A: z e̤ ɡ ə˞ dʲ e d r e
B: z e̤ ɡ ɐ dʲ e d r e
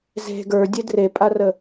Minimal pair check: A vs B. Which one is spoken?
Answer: A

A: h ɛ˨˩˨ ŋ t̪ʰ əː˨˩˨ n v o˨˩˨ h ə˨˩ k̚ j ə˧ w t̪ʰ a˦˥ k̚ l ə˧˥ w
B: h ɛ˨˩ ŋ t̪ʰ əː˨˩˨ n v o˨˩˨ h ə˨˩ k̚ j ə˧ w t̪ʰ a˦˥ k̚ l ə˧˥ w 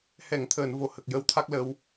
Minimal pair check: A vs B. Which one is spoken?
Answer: A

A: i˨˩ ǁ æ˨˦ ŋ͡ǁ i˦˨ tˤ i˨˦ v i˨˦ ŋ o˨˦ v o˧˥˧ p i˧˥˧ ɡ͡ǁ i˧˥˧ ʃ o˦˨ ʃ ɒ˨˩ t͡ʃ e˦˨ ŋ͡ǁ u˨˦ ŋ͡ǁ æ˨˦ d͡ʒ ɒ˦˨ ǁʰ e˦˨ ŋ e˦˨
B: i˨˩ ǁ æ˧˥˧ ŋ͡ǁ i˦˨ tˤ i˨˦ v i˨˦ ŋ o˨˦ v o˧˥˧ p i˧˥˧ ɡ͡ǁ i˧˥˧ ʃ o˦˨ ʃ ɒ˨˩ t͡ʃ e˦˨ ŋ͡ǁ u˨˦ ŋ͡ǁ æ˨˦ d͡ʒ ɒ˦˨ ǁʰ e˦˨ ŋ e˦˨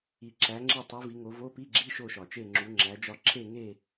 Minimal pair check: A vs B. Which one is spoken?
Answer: A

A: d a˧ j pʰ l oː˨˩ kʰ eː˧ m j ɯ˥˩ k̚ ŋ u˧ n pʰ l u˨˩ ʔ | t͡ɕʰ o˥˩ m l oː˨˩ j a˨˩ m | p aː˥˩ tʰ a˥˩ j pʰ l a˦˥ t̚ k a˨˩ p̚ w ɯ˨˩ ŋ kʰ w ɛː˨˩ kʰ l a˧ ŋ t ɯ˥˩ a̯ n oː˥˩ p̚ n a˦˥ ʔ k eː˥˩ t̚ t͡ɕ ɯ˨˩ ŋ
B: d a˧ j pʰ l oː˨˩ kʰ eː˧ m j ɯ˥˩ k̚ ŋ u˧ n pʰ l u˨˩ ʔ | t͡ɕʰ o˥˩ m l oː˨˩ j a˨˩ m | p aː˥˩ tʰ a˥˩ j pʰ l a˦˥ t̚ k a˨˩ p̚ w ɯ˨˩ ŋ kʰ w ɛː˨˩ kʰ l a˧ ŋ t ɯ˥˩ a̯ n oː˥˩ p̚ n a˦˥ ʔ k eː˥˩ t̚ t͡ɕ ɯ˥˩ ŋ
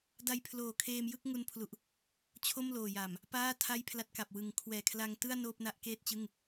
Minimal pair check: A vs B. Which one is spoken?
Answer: B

